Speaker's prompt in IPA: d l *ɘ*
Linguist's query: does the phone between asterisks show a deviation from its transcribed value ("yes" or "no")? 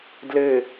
no